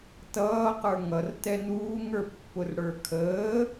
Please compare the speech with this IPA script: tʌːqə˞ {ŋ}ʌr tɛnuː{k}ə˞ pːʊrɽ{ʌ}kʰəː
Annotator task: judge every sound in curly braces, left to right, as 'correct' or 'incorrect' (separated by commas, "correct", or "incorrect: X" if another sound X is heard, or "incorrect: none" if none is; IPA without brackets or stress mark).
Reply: correct, incorrect: ŋ, incorrect: ə˞